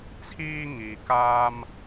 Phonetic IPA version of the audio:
t͡sʰ iː˥ ŋ iː˧ k aː˥ m

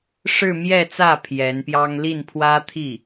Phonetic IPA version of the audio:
ʂ ɻ̩˥˧ m j ɛ˥˧ t͡s ä˥˩ pʰ j ɛ˧˥ n p j ɑ˥ ŋ l i˥˩ n pʰ w ä˥ t̪ʰ i˥˩

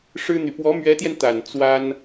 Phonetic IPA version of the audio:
ʂ ɻ̩˥ n̪ y˨ p w ɔ˧˥ m ɥ ɛ˧˥ t̪ j ɛ˧ n t̪ a˨˩ n t͡s w a˥ n

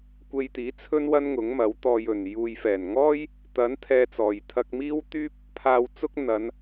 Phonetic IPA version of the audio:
kʷ e˧ j t̪ iː˨˥ t͡sʰ ɵ˥ n w ɐ˥ n ŋ ʊ˨˥ ŋ m ɐ˨˥ w t̪ ɔː˧ j ɵ˨ n j uː˨ j f ɛː˨˩ n ŋ ɔː˥ j | t̪ ɐ˨˥ n t̪ʰ ɛː˧ t͡s ɔː˨ j t̪ʰ ɐ˧ k̚ m iː˥ w t̪ yː˥ p̚ | pʰ aː˧ w t͡s ʊ˥ k̚ n̪ ɐ˨˧ n

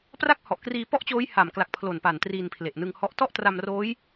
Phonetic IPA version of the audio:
p r a˥˩ k̚ h ɔ˨˩ ʔ k r iː˧ p ɔ˥˩ ʔ t͡ɕ oː˦˥ j h a˨˩ m k l a˨˩ k̚ pʰ l o˨˩ n p a˨˩ n t r i˧ n pʰ l e˨˩ ʔ n ɯ˧ ŋ h ɔ˦˥ ʔ t ɔ˥˩ ʔ t r a˧ m r oː˦˥ j

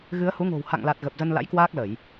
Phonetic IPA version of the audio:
ɣ ɨ˨˦ ə̯ h u˨˦ ŋ o̤˨˩ w h a̰˧˨ ŋ l a˨˩ t̚ ɣ ə˨˩ p̚ z ə˧ n l a̰˧˥ j k w aː˦˥ k̚ l ə˧˩˨ j

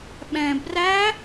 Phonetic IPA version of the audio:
ɓ ɛ̃ b r æ

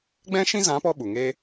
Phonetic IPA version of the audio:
ɡ͡b ɛ̃˦ ʃ ĩ˦ z ã˨˦ p ɔ˧ ɓ u˨ ŋ e˦

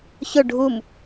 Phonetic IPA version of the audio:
ç ʊ ɖʱ u m

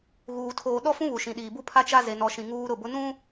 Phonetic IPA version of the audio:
ɣ uː˨ tʰ oː˨ ɗ ɔ˦ f ũ˦ β u˨ ʃ ĩ˨ ɗ iː˨ b u˦ pʰ a˦ t͡ʃ a˦ z e˦ n ɔ˦ ʃ ĩ˦ ŋ uː˦ ɾ ʊ˦˨ b ʊ˦ n ũ˦

